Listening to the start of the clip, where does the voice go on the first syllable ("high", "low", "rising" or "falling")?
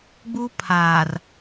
high